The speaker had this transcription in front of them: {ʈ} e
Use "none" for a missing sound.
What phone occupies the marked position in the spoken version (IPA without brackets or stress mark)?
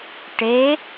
ʈ